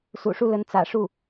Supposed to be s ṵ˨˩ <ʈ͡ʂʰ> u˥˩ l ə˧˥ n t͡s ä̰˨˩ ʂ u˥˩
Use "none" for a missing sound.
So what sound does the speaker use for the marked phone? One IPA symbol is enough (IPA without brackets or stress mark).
ʂ